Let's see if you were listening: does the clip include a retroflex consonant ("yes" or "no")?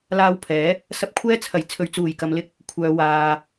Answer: no